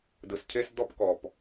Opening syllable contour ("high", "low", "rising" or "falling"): low